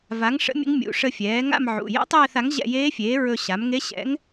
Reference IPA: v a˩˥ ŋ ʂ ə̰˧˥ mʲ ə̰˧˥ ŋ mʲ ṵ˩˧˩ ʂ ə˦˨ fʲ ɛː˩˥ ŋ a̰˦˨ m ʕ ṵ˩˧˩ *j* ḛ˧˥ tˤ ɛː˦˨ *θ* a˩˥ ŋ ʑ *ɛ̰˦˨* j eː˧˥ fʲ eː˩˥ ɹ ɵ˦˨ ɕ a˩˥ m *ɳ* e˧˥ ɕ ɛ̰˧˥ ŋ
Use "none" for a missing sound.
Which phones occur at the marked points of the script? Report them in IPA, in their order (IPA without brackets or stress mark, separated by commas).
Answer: j, θ, ɛ̰˦˨, ŋ